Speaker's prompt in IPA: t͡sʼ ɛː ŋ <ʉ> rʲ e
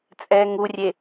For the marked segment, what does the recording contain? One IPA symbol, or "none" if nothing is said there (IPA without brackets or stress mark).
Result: u